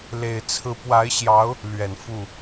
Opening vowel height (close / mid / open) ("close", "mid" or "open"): mid